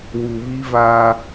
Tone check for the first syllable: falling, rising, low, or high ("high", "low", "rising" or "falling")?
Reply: low